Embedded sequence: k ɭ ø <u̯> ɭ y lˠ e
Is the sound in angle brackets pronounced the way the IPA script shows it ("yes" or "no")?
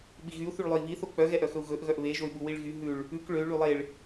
no